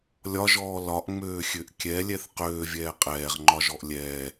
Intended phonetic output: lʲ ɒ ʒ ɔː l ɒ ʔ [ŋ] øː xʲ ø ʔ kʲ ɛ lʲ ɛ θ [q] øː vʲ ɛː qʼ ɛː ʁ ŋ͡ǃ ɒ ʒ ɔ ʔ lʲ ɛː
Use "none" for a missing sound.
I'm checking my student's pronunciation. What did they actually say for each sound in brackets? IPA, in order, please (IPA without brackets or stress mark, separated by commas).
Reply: ŋ͡m, q